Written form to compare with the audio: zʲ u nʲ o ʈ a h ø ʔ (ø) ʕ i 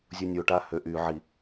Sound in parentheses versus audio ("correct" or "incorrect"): incorrect